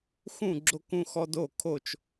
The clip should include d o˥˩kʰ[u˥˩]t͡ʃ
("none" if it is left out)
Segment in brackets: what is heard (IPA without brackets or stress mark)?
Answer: o˥˩